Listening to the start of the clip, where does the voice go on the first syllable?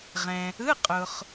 low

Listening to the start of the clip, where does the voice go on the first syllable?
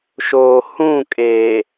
low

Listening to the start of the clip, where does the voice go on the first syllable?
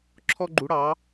high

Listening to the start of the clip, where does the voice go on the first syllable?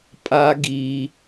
high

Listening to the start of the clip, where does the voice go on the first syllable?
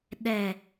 low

